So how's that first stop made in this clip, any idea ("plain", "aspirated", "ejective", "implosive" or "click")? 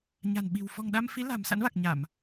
implosive